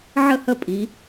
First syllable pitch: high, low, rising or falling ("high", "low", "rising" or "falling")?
falling